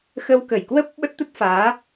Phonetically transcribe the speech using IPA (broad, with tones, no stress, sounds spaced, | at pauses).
x ə˧ w k ə˧˩ j k w ə˦˥ p̚ ɓ ə˦˥ t̚ t̪ ə˦˥ t̚ f aː˨˦